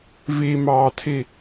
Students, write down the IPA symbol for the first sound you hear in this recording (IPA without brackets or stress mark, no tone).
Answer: v